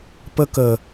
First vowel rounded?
no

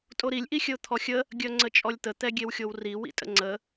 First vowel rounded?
yes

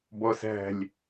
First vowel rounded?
yes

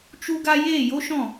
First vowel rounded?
yes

